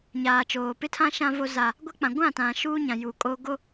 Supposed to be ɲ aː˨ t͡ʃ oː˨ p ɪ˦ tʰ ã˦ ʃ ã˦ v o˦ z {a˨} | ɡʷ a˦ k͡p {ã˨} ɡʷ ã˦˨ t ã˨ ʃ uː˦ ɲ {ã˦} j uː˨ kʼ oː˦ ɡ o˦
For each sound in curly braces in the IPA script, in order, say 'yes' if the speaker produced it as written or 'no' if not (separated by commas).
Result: no, yes, no